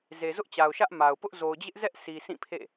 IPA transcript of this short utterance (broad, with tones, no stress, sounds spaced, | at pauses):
z e˨ z ʊ˦ ʔ t͡ɕ a˨ ʊ̯ ʃ ä˦ ʔ m a˨ ʊ̯ p ʊ˦ ʔ z o˨ ʊ̯ d͡ʑ ɪ˦ ʔ z ɛ˦ ʔ sʰ i˨ sʰ ĩ˦˨ pʰ ḛ˦˨